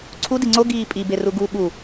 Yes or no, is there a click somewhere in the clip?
yes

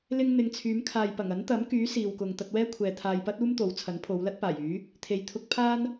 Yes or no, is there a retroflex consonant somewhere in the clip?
no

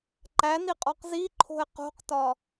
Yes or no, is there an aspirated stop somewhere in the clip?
yes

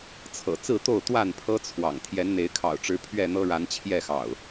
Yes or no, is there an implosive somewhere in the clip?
no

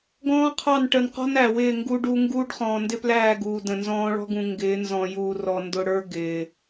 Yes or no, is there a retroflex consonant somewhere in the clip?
yes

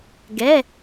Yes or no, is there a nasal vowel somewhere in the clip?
no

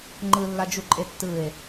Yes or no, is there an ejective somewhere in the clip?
yes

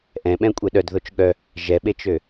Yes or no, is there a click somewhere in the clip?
no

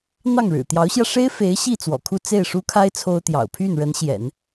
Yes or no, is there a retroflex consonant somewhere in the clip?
yes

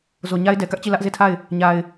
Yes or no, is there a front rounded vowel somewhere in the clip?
no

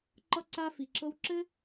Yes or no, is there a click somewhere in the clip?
yes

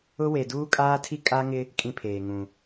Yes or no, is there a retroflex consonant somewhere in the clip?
no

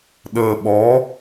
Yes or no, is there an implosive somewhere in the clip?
yes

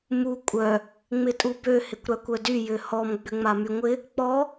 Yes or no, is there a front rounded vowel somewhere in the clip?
yes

